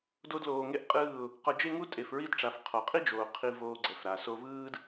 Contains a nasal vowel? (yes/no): no